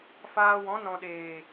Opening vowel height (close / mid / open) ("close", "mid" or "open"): open